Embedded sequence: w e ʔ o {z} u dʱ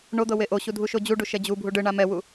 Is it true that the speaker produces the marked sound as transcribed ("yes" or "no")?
no